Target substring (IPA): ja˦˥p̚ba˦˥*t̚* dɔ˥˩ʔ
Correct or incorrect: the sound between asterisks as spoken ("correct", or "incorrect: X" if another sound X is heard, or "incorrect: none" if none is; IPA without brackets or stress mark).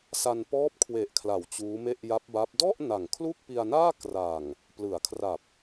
incorrect: p̚